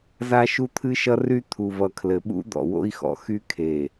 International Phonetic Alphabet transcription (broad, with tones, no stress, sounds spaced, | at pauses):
z a˦ ʃ u˦ t̪ʰ ɨ˦ ʃ ʌ˦ r y˦ t̪ʰ u˨ v ʌ˨ kʰ l ɘ˨ ɓ ṵ˦ d̪ ɔ̰˨ w o̰˦ i̯ x ɔ̰˨ x y˦ kʰ e˨